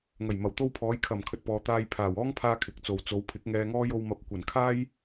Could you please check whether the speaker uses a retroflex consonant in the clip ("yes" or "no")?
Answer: no